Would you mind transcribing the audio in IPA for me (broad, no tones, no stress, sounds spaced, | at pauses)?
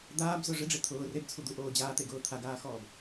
d̪ aː b z ʊ ʐ ɪ ɖ͡ʐ ɪ t̪ʰ ʊː r e b t͡sʰ u d̪ u ʔ oː d͡ʑ aː t̪ e ɡ ʊː t̪ʰ a ɡ aː x ɔː b